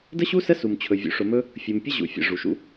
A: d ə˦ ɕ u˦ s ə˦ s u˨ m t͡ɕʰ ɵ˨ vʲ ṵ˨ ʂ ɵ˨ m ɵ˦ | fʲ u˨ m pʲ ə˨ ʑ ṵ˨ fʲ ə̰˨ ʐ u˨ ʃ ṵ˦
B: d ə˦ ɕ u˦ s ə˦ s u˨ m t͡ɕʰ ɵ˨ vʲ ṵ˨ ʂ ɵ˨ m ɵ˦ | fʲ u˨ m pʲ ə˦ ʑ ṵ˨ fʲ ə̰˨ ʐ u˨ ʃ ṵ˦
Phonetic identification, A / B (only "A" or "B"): B